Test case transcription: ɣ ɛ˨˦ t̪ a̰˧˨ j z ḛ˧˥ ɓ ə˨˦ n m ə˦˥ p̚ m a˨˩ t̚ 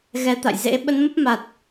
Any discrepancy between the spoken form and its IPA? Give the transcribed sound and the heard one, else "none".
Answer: none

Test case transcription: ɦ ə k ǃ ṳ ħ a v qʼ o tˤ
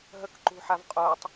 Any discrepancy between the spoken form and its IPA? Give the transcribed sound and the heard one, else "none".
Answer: none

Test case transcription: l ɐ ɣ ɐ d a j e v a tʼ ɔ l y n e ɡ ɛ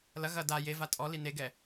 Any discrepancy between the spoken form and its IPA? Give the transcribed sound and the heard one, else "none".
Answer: y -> i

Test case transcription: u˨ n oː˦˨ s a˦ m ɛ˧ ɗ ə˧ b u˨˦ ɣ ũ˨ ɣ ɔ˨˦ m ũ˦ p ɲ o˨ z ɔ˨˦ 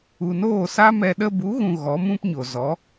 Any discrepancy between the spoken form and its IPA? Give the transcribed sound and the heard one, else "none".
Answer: none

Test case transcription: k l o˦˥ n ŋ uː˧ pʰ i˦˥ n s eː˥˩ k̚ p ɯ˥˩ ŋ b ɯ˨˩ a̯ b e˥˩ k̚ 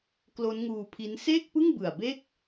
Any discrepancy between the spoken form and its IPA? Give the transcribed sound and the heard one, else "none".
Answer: none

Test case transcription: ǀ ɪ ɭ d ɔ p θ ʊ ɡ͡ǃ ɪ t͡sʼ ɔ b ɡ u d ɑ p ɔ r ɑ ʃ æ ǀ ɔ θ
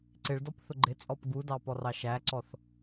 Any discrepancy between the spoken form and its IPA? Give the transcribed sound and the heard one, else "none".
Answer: b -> p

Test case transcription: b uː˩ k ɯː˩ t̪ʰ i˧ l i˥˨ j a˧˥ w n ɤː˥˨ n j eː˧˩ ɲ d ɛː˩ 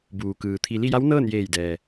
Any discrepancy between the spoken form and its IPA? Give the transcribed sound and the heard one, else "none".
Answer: ɲ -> j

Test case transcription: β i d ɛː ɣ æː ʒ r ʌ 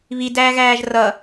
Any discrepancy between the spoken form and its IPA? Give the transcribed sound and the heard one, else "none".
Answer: ɛː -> æː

